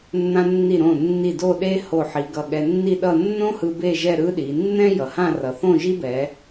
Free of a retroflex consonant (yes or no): yes